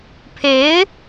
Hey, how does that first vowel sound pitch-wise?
rising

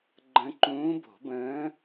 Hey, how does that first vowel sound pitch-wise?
rising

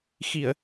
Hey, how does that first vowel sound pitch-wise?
low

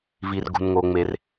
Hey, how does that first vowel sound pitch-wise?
low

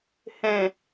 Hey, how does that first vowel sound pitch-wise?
low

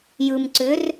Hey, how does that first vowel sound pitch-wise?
low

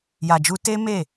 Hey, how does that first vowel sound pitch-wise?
low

